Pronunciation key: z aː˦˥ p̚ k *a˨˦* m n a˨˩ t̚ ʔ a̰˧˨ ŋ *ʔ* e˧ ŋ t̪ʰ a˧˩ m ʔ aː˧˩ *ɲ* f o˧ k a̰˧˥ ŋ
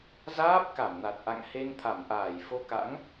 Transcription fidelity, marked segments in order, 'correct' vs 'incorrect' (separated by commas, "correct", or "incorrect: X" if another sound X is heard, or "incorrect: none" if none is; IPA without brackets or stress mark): incorrect: a˧˩, incorrect: h, incorrect: j